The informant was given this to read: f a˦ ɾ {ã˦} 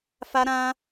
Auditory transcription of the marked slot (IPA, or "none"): ã˦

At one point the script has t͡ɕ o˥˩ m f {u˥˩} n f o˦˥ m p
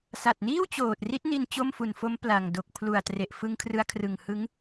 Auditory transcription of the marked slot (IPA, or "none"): u˨˩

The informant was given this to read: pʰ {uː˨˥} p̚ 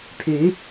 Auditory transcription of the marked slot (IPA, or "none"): yː˨˥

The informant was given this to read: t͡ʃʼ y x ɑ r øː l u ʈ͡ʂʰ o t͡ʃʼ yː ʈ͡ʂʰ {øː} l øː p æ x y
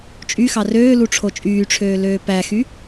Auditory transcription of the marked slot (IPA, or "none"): øː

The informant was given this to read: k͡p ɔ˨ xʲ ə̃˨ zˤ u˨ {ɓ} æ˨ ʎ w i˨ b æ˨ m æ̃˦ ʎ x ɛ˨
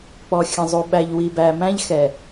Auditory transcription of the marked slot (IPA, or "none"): ɓ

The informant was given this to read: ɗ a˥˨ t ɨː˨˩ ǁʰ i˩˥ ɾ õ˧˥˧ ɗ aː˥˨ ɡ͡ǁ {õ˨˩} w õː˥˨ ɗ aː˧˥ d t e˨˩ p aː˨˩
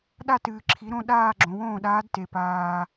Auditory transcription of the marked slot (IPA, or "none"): õ˩˥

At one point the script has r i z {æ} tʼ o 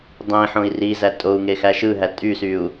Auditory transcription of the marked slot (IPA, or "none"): æ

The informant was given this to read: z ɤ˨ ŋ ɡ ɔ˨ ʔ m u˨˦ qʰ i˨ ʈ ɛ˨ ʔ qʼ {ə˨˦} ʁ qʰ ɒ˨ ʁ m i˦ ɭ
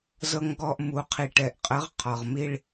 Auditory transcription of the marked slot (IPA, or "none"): ə˨˦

